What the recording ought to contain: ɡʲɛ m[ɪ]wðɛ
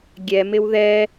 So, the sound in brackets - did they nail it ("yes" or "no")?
yes